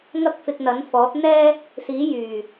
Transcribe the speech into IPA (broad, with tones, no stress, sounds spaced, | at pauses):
ŋ ɐ˥ k̚ f ɪ˧ k̚ n̪ ɐ˨˥ n f ɔː˨˥ t̚ n̪ ɛː˥ | s iː˨˥ j yː˨˩